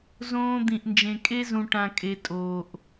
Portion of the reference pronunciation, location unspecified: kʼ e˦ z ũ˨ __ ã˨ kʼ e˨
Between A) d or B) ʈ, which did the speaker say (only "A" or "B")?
B